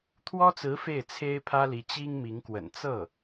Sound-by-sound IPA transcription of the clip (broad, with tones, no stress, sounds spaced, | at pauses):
t̪ʰ w ɔ˥ t͡s ɹ̩˧˥ f e˥˩ ɪ̯ t͡sʰ e˥ ɪ̯ pʰ ä˥ l i˧˥ t͡ɕ i˥ ŋ m i˧˥ ŋ k w ə̰˨˩ n t͡s ɤ˥˩